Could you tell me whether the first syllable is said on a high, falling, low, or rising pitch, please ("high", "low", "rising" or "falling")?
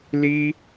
high